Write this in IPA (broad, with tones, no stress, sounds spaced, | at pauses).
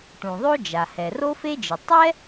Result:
ʈ ũ˩ ðˤ o˥ d͡ʒ a˩ h ɛ˩ r o˥ f e˥ d͡ʒ ɨ˩ tˤ ɛ˥